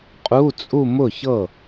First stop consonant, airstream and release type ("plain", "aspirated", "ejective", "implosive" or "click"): ejective